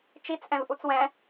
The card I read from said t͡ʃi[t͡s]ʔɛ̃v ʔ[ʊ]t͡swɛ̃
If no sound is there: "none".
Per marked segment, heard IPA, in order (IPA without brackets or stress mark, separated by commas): t͡s, u